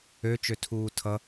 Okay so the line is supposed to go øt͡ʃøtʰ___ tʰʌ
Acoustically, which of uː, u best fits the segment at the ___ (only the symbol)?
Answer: uː